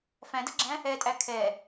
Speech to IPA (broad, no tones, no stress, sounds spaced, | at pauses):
f æ̃ d ʌ ɡ͡ǁ æ̃ | ɛ tʼ æ kʰ ɛ